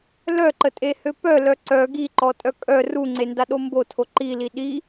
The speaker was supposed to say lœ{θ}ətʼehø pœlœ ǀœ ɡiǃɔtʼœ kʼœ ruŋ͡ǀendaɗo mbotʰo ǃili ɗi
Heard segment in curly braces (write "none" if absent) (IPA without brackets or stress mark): ǃ